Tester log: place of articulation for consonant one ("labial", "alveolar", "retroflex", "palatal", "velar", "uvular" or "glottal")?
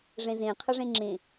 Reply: retroflex